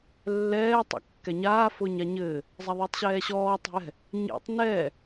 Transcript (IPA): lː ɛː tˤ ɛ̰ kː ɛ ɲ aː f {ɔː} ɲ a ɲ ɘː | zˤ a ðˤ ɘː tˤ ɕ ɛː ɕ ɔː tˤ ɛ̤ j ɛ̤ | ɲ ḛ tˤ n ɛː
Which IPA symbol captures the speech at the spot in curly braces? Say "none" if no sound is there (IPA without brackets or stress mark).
ʊː